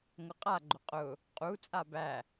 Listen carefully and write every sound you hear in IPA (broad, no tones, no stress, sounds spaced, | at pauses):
ŋ ʊ qʼ a ɡ͡ǃ ʊ qʼ ʊ | qʼ u t͡sʼ a b æ